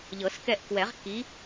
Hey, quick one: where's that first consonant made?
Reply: palate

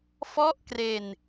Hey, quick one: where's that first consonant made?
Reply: lips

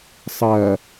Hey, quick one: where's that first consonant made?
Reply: tongue tip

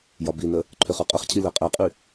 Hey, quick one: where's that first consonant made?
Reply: palate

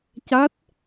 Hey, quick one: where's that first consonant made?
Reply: palate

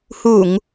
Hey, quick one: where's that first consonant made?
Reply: throat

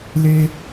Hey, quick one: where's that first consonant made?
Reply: tongue tip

